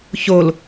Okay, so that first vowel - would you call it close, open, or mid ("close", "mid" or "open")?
mid